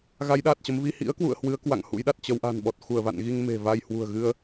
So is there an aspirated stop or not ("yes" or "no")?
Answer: no